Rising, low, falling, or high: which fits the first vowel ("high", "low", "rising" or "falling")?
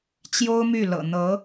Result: high